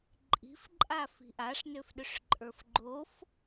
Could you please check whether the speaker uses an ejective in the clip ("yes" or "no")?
yes